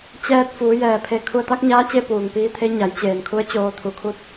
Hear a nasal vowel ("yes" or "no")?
no